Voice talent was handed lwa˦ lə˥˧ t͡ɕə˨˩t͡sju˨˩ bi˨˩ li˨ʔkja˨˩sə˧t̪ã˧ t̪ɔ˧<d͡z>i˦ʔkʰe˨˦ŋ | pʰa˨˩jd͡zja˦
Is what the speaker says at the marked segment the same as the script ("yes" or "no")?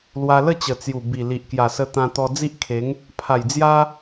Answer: yes